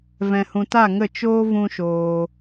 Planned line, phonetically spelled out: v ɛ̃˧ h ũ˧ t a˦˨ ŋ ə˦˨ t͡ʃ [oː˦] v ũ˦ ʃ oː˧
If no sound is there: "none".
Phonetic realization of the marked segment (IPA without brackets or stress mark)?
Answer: oː˦